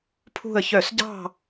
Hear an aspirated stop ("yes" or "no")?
yes